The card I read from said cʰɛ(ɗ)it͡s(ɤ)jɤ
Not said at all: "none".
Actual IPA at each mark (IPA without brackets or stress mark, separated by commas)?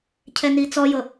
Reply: n, ɔ